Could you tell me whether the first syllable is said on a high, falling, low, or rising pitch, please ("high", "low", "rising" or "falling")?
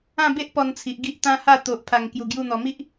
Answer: falling